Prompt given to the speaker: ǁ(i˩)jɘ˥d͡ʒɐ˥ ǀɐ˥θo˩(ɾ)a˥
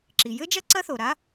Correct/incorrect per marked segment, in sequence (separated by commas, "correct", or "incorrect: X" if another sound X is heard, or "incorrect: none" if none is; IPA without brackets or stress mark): correct, correct